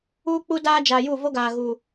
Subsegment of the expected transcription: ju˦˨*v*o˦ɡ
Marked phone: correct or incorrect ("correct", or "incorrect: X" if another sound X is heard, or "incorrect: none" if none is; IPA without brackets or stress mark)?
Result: correct